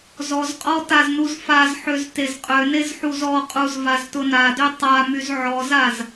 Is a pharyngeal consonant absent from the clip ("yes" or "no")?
no